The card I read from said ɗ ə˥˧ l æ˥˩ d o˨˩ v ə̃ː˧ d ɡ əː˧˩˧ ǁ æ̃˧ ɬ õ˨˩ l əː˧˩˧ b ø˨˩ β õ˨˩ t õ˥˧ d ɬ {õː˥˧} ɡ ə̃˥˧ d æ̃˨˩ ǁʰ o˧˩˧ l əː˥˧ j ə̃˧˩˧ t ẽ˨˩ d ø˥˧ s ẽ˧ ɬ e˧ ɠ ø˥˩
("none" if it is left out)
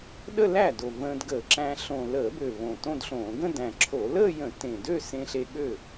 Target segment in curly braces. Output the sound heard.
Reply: õː˧˩˧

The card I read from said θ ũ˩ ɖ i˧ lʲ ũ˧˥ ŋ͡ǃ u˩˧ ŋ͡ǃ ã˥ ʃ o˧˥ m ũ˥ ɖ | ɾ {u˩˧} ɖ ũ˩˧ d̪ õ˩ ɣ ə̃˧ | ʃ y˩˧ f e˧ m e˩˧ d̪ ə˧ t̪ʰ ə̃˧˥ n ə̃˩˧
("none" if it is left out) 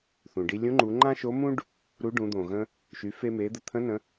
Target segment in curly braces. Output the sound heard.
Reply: u˧˥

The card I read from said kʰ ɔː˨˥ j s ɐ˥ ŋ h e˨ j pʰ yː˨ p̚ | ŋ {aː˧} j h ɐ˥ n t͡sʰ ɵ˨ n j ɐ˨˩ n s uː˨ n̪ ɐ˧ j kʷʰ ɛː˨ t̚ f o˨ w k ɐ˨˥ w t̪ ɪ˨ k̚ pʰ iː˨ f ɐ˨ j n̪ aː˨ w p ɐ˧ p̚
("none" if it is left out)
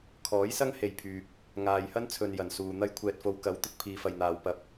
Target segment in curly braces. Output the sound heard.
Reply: aː˨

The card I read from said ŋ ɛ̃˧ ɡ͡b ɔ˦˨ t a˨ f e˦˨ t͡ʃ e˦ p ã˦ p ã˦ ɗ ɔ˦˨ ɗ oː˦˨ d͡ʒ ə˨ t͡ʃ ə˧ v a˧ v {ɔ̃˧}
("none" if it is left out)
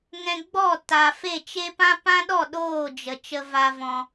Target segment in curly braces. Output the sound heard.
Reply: ɔ̃˧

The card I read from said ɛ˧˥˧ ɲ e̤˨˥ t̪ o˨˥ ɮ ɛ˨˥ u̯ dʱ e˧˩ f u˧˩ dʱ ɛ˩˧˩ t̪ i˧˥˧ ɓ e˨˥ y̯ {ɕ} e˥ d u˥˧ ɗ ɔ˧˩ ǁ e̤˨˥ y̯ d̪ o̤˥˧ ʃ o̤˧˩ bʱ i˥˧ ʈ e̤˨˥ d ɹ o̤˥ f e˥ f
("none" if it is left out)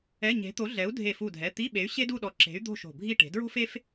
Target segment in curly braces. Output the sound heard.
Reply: ɕ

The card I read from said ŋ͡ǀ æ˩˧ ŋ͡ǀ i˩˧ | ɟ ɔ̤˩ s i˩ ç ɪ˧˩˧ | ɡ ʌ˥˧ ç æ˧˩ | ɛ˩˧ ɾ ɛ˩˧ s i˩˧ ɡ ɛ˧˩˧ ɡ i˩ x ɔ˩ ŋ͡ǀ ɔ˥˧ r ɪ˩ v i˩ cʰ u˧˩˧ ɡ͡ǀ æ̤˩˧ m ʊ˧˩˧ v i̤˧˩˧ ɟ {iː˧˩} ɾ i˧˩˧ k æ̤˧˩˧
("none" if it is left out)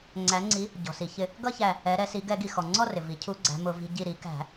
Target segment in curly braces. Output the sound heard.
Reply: i˧˩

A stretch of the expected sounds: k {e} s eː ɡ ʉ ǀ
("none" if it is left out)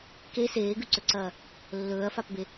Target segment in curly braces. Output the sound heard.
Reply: e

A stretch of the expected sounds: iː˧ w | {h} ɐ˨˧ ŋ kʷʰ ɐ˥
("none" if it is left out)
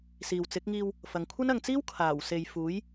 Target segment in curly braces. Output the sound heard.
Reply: f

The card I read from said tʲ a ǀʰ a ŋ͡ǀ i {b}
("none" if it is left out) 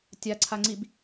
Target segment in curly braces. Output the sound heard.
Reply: b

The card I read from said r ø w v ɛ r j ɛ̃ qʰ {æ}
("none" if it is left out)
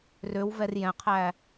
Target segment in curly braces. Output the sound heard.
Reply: æ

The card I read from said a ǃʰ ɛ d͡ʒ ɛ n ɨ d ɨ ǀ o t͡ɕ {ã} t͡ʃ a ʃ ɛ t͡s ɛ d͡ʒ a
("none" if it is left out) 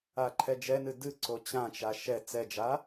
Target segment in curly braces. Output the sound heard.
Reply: ã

